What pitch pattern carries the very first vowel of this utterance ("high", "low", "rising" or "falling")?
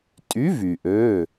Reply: rising